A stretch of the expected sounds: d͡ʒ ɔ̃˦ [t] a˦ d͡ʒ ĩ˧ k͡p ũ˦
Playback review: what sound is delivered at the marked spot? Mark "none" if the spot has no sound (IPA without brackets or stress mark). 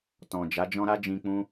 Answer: ɾ